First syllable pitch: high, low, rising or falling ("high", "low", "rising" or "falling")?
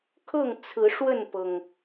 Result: falling